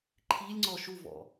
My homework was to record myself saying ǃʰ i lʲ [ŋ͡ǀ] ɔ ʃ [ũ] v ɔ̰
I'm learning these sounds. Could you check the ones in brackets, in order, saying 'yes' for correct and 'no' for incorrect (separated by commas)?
yes, no